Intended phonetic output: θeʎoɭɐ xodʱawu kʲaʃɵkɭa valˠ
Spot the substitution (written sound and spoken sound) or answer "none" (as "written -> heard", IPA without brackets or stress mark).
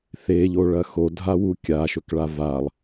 none